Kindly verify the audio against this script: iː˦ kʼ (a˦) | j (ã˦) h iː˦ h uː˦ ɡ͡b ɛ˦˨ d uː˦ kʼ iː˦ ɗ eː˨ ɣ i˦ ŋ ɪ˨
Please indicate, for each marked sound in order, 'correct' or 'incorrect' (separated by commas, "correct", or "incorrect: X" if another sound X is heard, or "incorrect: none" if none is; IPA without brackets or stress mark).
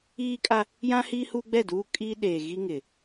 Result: correct, correct